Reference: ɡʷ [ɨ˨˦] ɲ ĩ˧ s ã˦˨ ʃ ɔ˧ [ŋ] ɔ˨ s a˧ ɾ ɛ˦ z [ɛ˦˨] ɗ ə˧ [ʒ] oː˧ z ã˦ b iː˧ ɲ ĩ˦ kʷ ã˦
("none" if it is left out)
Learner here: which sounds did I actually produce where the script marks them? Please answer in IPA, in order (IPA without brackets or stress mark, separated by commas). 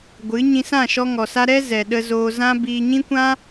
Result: ɨ˨˦, ŋ, ɛ˨, z